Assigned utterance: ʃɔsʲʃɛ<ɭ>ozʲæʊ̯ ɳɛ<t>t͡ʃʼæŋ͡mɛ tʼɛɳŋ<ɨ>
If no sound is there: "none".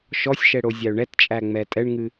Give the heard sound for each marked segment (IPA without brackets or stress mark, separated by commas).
ɽ, t, ɨ